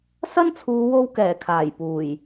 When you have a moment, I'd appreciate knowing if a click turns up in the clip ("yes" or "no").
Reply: no